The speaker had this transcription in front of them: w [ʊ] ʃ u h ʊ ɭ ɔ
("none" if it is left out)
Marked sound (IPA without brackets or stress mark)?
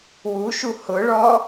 u